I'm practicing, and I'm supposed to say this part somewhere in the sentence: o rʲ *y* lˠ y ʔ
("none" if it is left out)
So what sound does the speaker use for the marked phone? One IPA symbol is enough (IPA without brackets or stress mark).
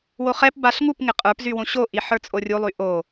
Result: u